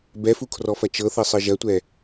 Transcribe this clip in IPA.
b ɛ f u kʰ r ɔ f ɐ t͡ʃ ɤ θ ɤ sˤ ɤ ʒ ɐ tʷ ɛ

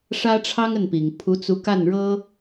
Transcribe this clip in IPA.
ʂ ä˥ ʈ͡ʂʰ ɑ˥ ŋ ə˥˩ n p i˨˩ ŋ pʰ u˧˥ t͡s u˧˥ k a˥˩ n ɻ ɤ˥

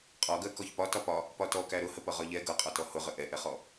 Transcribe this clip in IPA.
qʼ ɒ ɡ ɜ k ɔ ç p ɒ t ɒ p ɒ | p ɒ t ɔ k æ ɾ ʊ h ə p ʌ ʁ ɒ ʎ ɛ ɡ ʌ qʼ ɒ t ɔ h ʊ ʁ ə ʔ ɛ ʔ ɛ χ ɔ

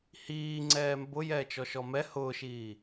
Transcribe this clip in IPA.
h iː ŋ͡ǀ ɛː m b ʊ j ɛː t͡ʃ ɔ ʃ ɔ m ɛ h ʊː ʃ iː

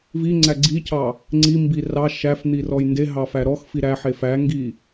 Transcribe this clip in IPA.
v i ŋ͡ǀ æ ɡ͡ǀ i cʰ ɑ | ŋ͡ǀ i m b i r ɑ ʃ æ f n̪ i r ɔ j n d e ɦ ɑ f æ ɾ ɔ x f i ɾ æ ħ e f æ ŋ ɡ i

